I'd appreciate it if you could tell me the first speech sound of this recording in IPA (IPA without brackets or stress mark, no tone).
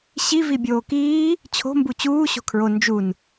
ɕ